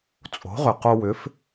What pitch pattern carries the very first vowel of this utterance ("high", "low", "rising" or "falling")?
rising